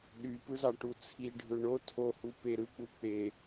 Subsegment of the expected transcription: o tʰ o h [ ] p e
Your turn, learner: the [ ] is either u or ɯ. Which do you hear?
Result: u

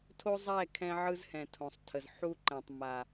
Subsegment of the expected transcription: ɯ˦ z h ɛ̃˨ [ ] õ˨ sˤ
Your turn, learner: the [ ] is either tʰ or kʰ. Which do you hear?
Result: tʰ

